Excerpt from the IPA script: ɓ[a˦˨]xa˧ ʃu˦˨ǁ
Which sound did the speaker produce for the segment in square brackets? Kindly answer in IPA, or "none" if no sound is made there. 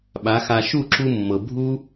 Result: a˨˦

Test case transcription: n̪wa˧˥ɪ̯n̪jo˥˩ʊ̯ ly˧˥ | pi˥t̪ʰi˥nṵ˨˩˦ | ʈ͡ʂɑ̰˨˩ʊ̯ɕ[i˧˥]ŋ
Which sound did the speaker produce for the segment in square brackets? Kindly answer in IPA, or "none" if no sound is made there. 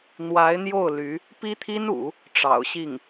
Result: i˥˩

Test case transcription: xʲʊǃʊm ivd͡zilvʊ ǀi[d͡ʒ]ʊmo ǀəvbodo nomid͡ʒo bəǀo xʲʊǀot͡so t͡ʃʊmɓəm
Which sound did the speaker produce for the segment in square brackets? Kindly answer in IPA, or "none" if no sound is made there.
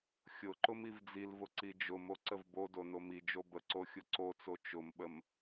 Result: d͡ʒ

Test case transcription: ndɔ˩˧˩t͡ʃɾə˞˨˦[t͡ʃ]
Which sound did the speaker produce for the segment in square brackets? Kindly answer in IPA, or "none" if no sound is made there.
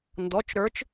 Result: t͡ʃ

